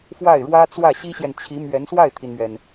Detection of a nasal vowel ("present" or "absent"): absent